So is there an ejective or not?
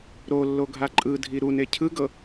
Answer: yes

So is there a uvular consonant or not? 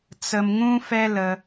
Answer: no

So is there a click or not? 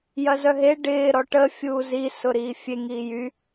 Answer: no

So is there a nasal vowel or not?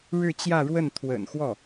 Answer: no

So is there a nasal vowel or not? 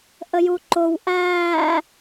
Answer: no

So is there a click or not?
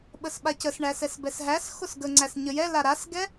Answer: yes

